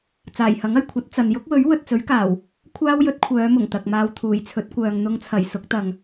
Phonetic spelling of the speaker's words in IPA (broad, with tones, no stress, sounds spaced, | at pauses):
t͡s aː˨˩ j h ɐ˨˥ ŋ ɐ˨˩ j kʷʰ ɐ˨˥ t̚ t͡s ɐ˨ n j ʊ˥ k̚ w ɵ˨˥ ɥ w ɵ˨ t̚ t͡s ɵ˨˥ ɥ k aː˨˩ w | kʷʰ aː˥ w j ɵ˨˥ t̚ kʷʰ œː˨˧ m ʊ˨˩ ŋ t̪ ɐ˨ k̚ m aː˧ w t̪ʰ uː˨˩ j t͡sʰ ɵ˨˥ t̚ kʷ œː˨ ŋ n̪ ʊ˧ ŋ t͡sʰ ɐ˨˩ j s ʊ˨˥ k̚ t̪ ɐ˨ ŋ